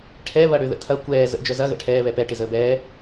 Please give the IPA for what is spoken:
ʈʰ ɛ β ɐ ɽ ø ð ə̰ tʰ ɐ kʷ ɛː z ə̰ d͡ʒ œ z ɐ ɣ ə̰ ʈʰ ɛː β ɛ p ɛ ʈ ɪ z əː b ɛː

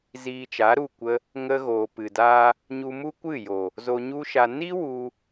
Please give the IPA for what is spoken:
z iː˧ t͡ʃ a˨˦ ɾ u˦˨ kʷ ə˧ | ŋ ə˧ ɣ oː˨ p ɨ˨ d aː˧ | ɲ u˧ m u˦ kʷ ɨ˦˨ j o˨ | z o˧ ɲ u˦ ʃ a˧ n i˦ w u˧

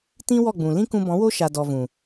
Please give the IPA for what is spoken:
t ĩ˦ w ɔ˦˨ ɡ͡b ũ˨ l ĩ˦ k ũ˧ b ɔ̃˨˦ w o˦ ʃ a˧ d ɔ˧ v ũ˨

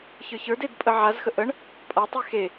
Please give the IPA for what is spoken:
ç ə˞ ç ə˞ d e d pʼ ə ʕ a z x ə ʔ ə ɳ | pʼ a tˤ y x e

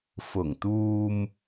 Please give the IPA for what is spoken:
f ʊ˨˩ ŋ t̪ uː˧ m

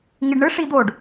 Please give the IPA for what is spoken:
ŋ i ɖ ɳ ɯ ʂ i d̪ o ɖ

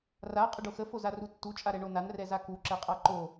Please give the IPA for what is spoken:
r a qʼ ə ɖ o x ə f o z a r u tː u t͡ʃʼ a ɾ ɛ ɳ o n a n r ɛ z a k u ǁ ɛ qʼ a ǃ o

